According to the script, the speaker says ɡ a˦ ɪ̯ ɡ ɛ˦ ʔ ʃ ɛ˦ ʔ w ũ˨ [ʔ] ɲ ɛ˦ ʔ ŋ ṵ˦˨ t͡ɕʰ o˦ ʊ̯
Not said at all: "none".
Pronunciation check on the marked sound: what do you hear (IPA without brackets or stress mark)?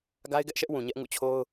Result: none